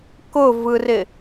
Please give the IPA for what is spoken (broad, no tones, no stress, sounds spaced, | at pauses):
k ʊ v ɯ r ɪ